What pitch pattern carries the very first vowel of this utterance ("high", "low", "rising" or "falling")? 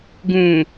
low